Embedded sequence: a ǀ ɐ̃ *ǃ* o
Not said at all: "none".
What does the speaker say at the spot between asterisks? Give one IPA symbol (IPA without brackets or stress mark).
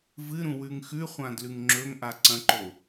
ǃ